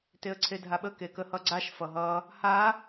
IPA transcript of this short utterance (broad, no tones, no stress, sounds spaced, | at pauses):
t e ə̯ ǀʰ e dʱ a ɓ ə k e k ə h ʌ ɡ͡ǀ a ʃ f ʌ ɦ ʌ | h a